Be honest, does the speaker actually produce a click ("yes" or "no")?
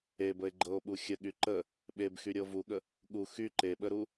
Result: yes